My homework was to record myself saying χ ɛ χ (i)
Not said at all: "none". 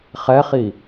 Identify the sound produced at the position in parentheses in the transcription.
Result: i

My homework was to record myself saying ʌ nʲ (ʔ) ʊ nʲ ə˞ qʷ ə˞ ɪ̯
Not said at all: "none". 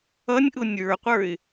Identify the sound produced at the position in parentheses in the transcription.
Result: ʔ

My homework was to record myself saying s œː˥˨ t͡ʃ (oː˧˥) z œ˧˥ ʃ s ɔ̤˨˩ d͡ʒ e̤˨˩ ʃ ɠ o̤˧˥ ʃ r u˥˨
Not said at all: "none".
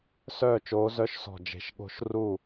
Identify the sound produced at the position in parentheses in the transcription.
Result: oː˧˥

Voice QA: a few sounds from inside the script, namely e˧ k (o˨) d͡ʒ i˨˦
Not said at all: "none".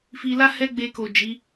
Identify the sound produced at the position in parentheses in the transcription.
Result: o˨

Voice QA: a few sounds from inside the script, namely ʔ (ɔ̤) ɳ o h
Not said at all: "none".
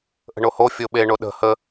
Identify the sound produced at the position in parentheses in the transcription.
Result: ə̤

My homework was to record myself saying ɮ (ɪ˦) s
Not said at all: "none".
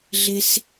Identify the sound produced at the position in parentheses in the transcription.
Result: ɪ˦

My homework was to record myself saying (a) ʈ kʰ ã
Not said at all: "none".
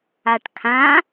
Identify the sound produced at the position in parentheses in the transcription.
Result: a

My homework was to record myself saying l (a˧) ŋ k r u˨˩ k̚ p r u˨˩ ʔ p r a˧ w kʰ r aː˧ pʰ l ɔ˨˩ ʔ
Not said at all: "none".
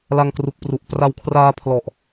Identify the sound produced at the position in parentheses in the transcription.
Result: a˧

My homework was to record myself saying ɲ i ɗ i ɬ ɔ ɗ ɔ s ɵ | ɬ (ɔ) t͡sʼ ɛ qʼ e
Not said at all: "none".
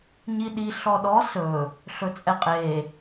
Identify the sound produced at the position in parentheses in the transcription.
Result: ɵ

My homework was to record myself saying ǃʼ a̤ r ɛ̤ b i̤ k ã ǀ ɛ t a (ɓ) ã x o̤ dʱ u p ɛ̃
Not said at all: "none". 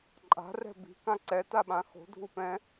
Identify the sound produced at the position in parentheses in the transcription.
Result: ɓ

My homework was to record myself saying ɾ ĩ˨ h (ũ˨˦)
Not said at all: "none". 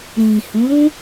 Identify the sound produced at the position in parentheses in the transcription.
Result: ũ˨˦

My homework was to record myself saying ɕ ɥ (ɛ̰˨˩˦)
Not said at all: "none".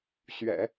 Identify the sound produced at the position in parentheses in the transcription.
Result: ɛ̰˨˩˦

